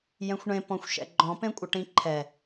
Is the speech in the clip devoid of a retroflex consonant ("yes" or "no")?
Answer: no